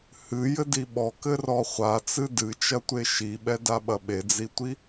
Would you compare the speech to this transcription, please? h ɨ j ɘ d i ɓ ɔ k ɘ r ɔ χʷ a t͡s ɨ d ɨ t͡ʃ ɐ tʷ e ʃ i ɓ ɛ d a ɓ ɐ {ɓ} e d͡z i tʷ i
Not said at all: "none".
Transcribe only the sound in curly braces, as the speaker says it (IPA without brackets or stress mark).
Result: ɓ